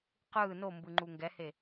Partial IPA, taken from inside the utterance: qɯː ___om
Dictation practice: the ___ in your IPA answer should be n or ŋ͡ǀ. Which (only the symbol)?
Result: n